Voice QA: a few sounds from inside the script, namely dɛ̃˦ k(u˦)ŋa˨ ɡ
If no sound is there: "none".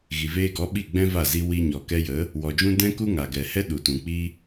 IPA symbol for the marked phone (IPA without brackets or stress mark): u˦